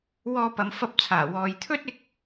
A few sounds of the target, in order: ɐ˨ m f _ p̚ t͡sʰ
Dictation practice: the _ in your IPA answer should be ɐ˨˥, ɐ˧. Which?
ɐ˧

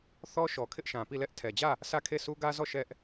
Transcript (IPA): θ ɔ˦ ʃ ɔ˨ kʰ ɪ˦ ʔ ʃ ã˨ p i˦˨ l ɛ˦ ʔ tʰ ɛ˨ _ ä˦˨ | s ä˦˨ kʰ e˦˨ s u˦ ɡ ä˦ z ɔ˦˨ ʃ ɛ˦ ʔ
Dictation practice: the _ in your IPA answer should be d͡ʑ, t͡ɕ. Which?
d͡ʑ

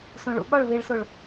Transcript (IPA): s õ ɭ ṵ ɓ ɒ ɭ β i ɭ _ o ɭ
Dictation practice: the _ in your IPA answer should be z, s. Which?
s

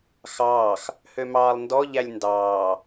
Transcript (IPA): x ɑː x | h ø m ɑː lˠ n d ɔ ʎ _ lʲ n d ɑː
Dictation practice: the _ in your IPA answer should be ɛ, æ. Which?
æ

